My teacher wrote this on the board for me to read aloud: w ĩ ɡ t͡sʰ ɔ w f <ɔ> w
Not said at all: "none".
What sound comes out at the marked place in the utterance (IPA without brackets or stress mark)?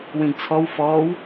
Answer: ɔː